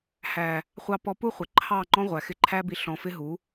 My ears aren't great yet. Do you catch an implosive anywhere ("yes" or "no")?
no